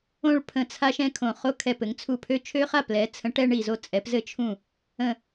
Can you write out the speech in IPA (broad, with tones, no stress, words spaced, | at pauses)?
õ˦ɭpʰə̃˧˩t͡sʰa˦ʃ ɛ̃˦kʰõ˧˩ χo˦kʰɛ˧˩p ɘ˩˧ŋt͡sʰu˧˩pʰø˦ t͡ʃʰø˦χa˥˩ plɛ˩˧t͡sʰə̃˩˧ ʈɛ˦ɳi˧˩zo˥˩ t͡sʼɛ˩˧pzɘ˦t͡ʃʰũ˧˩ | ə̃˧˩